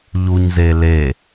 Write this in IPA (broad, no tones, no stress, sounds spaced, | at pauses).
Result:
ʎ u ɲ z e l e